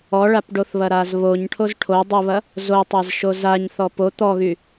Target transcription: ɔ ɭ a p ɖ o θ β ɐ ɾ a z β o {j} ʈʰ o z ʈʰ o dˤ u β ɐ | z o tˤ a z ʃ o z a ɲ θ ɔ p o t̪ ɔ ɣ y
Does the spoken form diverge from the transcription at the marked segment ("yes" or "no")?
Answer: yes